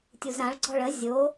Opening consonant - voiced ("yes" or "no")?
no